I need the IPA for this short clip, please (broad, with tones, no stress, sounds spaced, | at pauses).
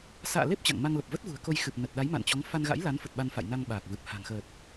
s a̰ː˧˨ l e˦˥ p̚ t͡ɕ a̰˧˨ ŋ m a˧ ŋ l ə˨˩ p̚ v ə˦˥ t̚ v ṳ˨˩ ə̯ k o˧ j x ɨ˨˩ p̚ n ə˨˩ t̚ ɗ a˨˦ j m a̰˧˨ n t͡ɕ ɔ˨˦ ŋ f a˧ n ɣ a̰˧˥ j l a˨˦ n f ə˨˩ t̚ ɓ a˧ n f a̰˧˨ j n a˧ ŋ ɓ aː˨˩ k̚ v ɨ˨˩ p̚ h a̤˨˩ ŋ x əː˨˩ t̚